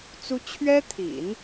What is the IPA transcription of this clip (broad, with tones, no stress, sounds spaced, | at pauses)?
t͡s u˥ t͡ɕʰ ɥ ɛ˥ t̪ʰ ḭ˨˩˦ n